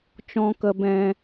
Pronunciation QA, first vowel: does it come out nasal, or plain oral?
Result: nasal